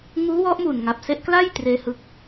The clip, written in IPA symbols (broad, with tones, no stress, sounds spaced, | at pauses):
ŋ uː˦˥ w ɔ˦˥ ʔ m u˨˩ n ŋ a˨˩ p̚ s e˦˥ ʔ k l a˥˩ j t r eː˦˥ h ɯ˦˥ k̚